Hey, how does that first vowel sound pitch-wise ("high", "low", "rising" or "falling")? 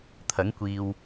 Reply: rising